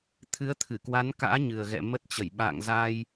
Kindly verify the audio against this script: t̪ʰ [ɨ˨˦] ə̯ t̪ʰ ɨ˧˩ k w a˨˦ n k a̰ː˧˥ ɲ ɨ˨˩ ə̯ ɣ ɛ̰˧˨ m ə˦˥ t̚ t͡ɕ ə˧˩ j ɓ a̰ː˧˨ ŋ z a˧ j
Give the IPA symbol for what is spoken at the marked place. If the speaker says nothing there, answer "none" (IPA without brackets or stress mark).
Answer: ɨ˨˦